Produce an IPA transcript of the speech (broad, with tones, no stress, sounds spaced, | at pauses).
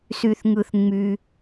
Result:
s y˩ θ ŋ ɯ˩ θ ŋ͡m y˩